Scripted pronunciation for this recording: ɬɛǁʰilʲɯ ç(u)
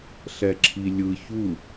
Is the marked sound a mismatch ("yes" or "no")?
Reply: no